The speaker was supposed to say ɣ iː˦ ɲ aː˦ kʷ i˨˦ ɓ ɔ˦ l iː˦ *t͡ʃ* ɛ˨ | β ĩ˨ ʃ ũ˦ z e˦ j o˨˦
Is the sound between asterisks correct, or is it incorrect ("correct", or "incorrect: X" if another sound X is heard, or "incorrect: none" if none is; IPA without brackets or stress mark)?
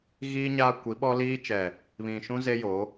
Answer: correct